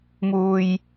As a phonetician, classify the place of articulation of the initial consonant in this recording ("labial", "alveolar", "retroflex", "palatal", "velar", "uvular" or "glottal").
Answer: labial